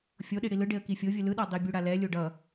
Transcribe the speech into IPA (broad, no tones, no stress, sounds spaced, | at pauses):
fʲ o ɗ i ɽ i l ɯ ɖ e ə̯ k i fʲ o vʲ ɯ l ɯ ɗ a dˤ i bʲ u ɽ a l ɛ lʲ o ɖ ʌ